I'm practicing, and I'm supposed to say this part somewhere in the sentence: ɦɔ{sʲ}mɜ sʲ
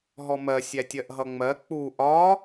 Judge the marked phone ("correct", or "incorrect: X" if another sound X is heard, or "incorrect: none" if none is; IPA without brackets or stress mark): incorrect: none